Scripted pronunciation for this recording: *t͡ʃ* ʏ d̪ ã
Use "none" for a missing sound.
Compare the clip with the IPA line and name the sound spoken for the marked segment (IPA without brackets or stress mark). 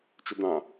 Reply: t͡ʃ